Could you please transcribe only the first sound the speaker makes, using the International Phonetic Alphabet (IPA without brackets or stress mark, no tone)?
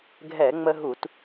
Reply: ɡʱ